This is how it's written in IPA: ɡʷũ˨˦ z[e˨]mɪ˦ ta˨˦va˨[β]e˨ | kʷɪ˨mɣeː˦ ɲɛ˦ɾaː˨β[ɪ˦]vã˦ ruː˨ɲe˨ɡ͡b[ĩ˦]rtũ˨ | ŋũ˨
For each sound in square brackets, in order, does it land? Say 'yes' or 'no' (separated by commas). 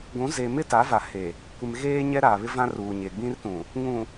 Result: yes, no, yes, yes